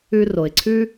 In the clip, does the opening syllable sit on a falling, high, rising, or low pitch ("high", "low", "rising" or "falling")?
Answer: high